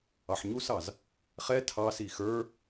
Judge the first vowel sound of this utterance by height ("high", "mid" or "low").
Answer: low